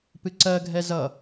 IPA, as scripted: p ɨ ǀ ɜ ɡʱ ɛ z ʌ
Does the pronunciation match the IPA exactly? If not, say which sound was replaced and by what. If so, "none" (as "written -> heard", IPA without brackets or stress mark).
none